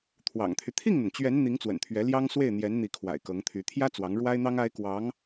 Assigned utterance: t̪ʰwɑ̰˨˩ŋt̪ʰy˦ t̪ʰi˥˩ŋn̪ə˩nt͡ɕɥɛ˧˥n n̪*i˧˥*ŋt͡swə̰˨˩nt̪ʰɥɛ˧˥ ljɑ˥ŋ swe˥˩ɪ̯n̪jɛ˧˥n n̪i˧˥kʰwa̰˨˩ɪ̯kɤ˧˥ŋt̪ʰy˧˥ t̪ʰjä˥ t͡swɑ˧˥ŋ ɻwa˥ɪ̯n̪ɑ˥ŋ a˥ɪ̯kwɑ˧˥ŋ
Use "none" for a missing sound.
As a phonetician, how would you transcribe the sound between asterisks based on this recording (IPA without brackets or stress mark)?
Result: i˧˥